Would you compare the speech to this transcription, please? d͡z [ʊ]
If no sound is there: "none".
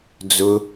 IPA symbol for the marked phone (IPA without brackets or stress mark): ʊ